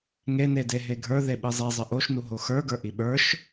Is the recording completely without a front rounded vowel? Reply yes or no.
yes